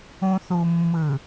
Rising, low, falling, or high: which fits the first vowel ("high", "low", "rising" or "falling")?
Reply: low